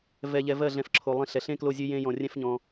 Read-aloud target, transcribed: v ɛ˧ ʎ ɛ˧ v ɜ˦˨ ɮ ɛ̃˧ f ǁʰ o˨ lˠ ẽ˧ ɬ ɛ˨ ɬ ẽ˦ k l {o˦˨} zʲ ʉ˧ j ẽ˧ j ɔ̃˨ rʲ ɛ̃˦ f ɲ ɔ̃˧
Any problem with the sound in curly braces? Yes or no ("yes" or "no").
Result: no